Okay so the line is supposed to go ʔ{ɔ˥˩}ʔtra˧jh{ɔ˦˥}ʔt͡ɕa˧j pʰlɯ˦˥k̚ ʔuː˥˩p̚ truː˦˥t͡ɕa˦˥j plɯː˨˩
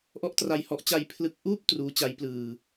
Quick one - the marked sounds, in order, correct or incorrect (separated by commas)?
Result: correct, correct